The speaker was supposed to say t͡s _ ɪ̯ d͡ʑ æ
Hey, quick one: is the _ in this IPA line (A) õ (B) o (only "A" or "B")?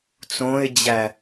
A